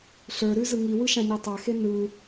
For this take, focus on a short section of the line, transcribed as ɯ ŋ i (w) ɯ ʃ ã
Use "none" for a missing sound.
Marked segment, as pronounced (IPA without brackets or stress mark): w